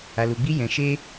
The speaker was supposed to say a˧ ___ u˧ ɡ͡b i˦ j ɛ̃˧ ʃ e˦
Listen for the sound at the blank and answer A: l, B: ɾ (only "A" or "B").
A